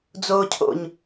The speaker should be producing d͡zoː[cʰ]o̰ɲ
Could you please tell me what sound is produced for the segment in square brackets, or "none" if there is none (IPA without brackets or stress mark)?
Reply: cʰ